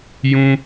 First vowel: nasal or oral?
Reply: nasal